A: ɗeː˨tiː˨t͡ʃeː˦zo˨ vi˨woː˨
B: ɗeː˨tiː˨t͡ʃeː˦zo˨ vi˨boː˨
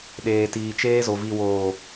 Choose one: A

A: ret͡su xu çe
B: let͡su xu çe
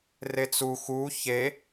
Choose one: A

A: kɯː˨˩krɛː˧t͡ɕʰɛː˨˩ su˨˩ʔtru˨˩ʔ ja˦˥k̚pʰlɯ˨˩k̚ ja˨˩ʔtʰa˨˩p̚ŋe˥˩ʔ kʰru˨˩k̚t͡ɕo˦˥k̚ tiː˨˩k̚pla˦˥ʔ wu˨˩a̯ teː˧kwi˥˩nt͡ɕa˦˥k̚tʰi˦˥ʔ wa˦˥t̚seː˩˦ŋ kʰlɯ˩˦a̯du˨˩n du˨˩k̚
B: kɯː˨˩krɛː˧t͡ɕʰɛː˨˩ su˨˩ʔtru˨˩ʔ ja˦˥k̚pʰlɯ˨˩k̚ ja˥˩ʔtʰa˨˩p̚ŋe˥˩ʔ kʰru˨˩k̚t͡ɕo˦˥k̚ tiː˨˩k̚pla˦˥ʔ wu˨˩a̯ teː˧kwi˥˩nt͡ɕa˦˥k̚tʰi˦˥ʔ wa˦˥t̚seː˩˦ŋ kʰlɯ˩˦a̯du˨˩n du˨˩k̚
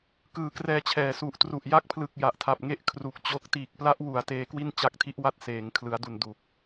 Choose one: A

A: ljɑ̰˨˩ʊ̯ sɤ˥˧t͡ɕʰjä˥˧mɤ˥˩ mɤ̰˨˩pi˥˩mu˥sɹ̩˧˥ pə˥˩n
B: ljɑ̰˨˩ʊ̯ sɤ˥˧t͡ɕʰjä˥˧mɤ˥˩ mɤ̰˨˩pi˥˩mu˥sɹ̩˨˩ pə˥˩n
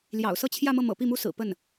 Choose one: B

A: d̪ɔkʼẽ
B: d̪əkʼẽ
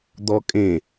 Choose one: A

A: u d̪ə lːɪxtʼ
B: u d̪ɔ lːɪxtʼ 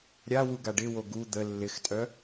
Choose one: A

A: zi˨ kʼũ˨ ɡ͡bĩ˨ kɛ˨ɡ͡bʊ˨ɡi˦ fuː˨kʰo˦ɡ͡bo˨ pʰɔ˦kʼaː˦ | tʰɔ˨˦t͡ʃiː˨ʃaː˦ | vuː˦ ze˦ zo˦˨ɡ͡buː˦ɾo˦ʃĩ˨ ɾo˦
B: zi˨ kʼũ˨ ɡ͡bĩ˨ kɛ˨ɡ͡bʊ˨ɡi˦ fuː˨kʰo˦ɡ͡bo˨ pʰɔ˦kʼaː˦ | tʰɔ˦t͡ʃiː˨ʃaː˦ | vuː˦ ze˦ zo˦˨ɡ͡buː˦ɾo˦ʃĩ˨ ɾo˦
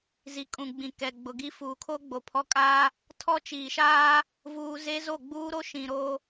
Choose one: B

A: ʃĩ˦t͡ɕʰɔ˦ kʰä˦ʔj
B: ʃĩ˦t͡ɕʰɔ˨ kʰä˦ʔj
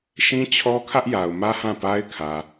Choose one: A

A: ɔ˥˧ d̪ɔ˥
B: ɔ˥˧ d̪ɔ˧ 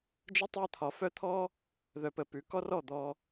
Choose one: B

